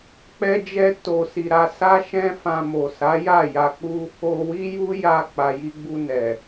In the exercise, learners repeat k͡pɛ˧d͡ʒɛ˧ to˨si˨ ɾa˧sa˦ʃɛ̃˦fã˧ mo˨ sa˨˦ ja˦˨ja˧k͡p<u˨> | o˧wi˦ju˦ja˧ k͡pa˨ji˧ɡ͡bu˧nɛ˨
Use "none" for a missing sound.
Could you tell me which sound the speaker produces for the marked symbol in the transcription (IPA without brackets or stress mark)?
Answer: u˦